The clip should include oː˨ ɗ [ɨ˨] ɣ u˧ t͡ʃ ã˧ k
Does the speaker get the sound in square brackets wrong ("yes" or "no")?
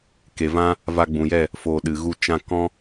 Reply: no